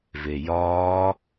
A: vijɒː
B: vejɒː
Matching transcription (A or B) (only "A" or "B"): B